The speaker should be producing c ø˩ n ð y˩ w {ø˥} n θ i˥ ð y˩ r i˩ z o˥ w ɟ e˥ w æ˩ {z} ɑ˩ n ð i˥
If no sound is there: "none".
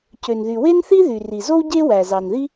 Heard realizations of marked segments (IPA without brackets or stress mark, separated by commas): e˥, z